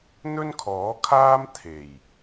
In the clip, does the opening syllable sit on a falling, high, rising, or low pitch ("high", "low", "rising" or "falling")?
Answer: high